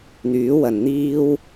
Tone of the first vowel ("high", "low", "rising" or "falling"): rising